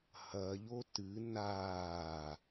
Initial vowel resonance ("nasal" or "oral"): oral